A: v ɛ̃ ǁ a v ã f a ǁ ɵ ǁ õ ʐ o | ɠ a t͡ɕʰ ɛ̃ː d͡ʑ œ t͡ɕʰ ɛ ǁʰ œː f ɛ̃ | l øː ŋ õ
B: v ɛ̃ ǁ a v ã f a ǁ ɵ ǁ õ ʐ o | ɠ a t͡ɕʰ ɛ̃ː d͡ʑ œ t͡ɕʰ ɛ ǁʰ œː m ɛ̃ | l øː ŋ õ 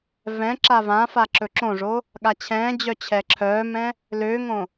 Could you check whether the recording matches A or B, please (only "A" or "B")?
B